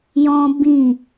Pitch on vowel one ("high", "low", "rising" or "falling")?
high